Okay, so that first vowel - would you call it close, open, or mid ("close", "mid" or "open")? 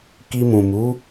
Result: close